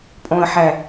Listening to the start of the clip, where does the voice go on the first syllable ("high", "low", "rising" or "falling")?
low